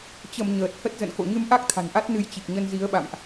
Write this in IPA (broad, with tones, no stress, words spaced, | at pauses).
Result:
t͡ɕə˧˩m ɲəː˨˩t̚ hə˦˥t̚ zə̰˧˨nko̰˧˨ɲɨ˧m ʔa˦˥k̚ t̪ʰa̤˨˩nʔa˦˥t̚ nɨ˧jt͡ɕi˨˩k̚ ɲə˧nzi˨˦ə̯ɓa̰˧˨mʔ